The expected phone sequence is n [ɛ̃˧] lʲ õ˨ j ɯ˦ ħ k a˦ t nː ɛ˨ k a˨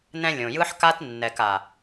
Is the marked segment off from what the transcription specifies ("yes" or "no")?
no